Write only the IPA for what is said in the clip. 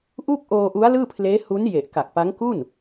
ʔ u˥˩ k̚ ʔ oː˧ ʔ u˦˥ a̯ l ɯː˥˩ pʰ l eː˦˥ h u˦˥ n j e˨˩ ʔ k a˨˩ k̚ p a˦˥ ŋ k u˥˩ n

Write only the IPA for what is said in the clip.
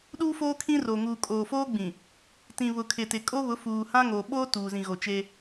ɗ uː˦ f oː˦ kʰ ĩ˦ r o˨ ŋ uː˨ kʼ oː˨ f oː˦ ɡ͡b ĩ˨ | t ĩ˨ β ʊ˨ kʰ ɪ˨ t ɪ˨ kʼ o˦ β ʊ˨˦ f uː˨ h ã˦ ŋ oː˨ ɓ oː˦ t uː˨ z ĩ˨ ɣ o˨ t͡ʃ eː˦

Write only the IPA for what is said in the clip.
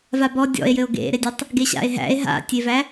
v a b ɔ dʲ ɔ̰ e̯ j ɘ o̯ ɡ ḛ ɾ e dʲ ɘ tˤ | ɡ e ɕ a̰ e̯ ɦ æ̰ e̯ ɦ a̰ tʲ e v æ

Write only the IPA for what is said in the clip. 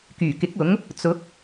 k yː˨˩ k ɪ˨˥ k̚ ʊ˨˥ ŋ | t͡s ʊ˨˥ k̚

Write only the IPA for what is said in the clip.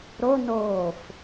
ɾ o n oː f

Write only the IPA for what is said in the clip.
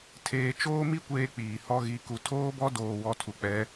tʰ eː˦ t͡ʃ oː˦ m i˦ kʷ eː˦ k͡p iː˨ h ɔ˦ ɣ i˦ k u˦ tʰ oː˦ b ɔ˦ d oː˦ w ɔ˦ tʰ u˨ k͡p ɛ˨˦

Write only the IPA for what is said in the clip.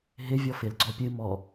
ɦ ɪ vʲ ɔ f ɪ l ɡ͡ǀ ɔ pʲ ɨ m ɔ

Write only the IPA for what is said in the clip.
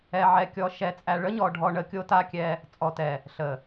ɛ˨ ʕ ɛ˨ kʲ ɔ˨ ʃ ɛ˨ t͡sʼ æ˨ ɭ ə˦ ɲ ɔ˨ ɖʱ ɔ˨ ɳ ə˨ kʲ o˦ t a˦ kʲ ɛ˦ | t͡sʼ ɔ˨ t ɛ˨ | ɬ ə˨

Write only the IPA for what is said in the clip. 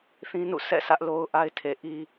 θ ĩ˦ n ṵ˦˨ s ɛ̰˦˨ sʰ ä˦ ʔ l o˦ ʊ̯ ʔ a˦ ɪ̯ tʰ e˨ ʔ i˦

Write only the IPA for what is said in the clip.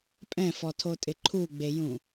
pʼ ɛ̃ f ɔ tʰ o tʼ ɪ ǃʰ u ɡ͡b e j ũ

